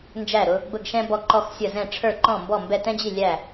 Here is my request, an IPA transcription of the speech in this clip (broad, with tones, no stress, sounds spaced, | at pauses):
n d͡ʒ æ˧˩ ɾ ʊ˧ | b ə˧˩ ɡ ʃ ɛ̃˧ b ɔ˧ ǃ ɔ˧ x sʲ ə˧˩ z ɛ̃˧˩ ʈ͡ʂʰ ə˞˧˩ ǃ ɔ̃˧˩ m b ɔ˧˩ m b ɛ˧˩ t ɛ̃˧ d͡ʑ i˧˩ lʲ æ˧˩